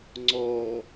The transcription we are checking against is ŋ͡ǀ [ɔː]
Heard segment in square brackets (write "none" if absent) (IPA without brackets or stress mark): ɔː